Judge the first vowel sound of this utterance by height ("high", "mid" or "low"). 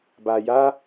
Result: low